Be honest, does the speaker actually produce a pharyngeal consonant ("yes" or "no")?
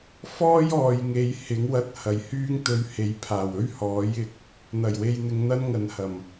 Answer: no